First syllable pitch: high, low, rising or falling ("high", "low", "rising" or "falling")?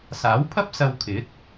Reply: rising